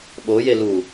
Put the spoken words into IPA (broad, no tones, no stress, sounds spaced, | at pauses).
ɓ o j e l u